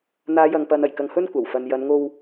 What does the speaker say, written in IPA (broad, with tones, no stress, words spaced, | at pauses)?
n̪aː˨˧jɐ˨ŋpɐ˨n ɐ˨˩jkɐ˧ŋhɵ˥nkʷɐ˨˩w fɐ˨njɐ˨˧nŋo˧w